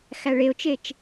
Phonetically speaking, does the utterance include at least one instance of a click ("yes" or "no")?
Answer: no